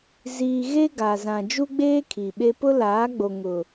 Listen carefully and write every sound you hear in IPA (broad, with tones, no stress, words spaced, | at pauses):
ziː˨ɣe˦ ɡa˨zã˨ d͡ʒu˦ɡ͡beː˦ kʰiː˨ɓe˦ pʊ˦ laː˨˦ɡ͡bo˨ ŋʊ˨